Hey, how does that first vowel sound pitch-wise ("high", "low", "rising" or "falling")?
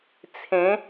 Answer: rising